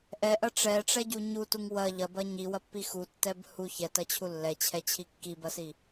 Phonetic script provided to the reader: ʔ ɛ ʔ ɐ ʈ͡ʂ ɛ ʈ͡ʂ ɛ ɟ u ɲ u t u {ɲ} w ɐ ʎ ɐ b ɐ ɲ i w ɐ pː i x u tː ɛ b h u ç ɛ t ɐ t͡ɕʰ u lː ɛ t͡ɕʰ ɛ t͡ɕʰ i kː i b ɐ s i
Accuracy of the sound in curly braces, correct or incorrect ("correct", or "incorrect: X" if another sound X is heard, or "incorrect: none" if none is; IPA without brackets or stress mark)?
incorrect: ŋ